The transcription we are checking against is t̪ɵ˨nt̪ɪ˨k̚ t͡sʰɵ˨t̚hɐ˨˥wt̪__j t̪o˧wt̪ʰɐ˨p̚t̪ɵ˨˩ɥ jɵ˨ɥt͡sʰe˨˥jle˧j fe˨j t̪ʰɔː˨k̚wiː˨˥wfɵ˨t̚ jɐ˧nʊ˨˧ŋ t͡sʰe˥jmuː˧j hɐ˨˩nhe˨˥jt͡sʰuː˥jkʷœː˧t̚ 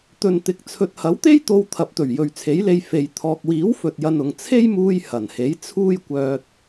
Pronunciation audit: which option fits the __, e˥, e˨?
e˥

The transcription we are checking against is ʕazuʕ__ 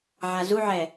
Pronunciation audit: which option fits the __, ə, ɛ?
ɛ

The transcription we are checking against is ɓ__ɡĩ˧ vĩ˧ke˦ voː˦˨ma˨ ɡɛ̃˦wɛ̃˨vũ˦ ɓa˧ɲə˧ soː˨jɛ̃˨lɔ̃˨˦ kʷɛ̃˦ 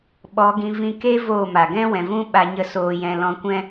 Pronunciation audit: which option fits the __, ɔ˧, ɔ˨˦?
ɔ˨˦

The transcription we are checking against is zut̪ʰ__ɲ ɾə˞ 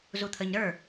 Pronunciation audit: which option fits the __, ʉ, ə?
ə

